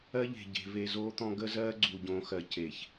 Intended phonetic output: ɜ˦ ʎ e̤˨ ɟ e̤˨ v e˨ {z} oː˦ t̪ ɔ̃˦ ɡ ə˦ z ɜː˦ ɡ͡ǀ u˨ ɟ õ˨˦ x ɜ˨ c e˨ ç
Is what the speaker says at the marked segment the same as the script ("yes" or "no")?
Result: yes